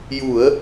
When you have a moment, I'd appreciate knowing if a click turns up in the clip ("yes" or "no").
no